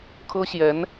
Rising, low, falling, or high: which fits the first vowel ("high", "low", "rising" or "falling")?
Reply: high